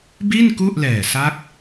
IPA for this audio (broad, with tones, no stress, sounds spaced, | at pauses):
b i˥˩ n k u˥˩ ʔ l ɛː˨˩ s a˦˥ k̚